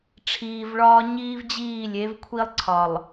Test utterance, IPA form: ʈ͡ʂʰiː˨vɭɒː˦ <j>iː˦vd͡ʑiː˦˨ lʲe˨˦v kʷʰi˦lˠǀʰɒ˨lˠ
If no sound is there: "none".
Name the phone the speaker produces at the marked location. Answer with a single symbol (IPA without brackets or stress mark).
ɲ